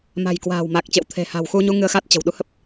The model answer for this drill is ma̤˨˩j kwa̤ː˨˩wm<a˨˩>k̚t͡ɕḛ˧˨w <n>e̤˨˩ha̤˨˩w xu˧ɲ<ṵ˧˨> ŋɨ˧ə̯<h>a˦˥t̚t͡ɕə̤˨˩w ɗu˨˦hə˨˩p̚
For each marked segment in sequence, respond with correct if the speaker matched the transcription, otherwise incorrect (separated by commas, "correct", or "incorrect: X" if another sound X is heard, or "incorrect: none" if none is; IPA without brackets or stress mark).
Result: correct, incorrect: t̪ʰ, incorrect: u˧, incorrect: x